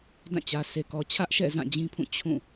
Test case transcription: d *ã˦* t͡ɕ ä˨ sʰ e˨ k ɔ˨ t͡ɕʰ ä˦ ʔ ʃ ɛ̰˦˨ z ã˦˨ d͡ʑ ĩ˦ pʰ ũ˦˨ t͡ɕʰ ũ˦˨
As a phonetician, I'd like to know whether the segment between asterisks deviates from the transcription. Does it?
yes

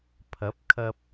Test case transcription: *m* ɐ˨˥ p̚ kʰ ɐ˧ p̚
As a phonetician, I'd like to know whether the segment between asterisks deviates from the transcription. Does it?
yes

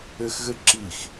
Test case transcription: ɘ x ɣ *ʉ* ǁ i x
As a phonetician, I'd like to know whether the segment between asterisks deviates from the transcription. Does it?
yes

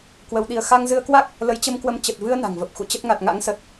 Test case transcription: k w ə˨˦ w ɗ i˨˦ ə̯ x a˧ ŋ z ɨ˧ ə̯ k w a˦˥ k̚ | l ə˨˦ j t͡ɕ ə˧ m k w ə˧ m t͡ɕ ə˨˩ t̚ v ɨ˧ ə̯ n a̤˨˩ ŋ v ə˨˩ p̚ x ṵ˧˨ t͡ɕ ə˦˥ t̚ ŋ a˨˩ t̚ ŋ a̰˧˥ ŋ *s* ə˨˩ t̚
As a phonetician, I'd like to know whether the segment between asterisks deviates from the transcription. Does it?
no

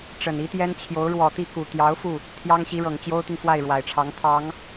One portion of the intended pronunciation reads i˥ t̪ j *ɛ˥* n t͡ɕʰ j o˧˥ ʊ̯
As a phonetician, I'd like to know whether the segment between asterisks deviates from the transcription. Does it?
no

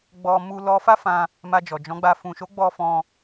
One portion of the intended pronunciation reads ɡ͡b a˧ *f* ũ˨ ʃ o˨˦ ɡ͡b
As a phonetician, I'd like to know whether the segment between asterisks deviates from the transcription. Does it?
no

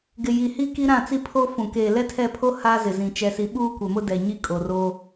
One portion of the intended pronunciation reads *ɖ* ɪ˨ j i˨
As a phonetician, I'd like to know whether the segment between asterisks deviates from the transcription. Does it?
yes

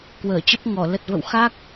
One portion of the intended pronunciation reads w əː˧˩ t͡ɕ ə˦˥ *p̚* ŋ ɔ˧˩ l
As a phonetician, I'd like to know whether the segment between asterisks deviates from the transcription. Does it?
no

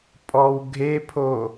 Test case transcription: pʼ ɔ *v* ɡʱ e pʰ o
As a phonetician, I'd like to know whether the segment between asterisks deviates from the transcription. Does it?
yes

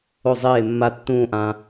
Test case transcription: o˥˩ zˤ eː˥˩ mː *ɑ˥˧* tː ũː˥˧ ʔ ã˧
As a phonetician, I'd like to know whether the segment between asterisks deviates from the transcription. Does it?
yes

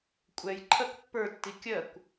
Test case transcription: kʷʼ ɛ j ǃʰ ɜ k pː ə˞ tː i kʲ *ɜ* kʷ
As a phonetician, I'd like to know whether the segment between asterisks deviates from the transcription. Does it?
no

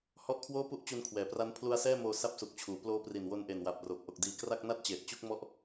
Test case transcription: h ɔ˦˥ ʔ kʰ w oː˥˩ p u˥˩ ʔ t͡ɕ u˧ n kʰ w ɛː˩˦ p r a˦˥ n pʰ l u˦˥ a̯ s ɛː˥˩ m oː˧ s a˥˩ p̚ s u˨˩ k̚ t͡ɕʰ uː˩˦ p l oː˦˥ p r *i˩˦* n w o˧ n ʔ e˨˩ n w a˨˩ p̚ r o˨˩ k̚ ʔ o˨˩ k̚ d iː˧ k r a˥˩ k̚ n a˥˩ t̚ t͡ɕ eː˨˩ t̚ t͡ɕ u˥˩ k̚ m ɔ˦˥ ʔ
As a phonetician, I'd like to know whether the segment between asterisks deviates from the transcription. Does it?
yes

